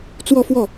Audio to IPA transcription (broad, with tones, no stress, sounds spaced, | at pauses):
t͡s w ɔ˥˧ f w ɔ˥˩